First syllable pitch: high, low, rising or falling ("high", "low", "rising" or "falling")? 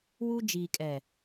high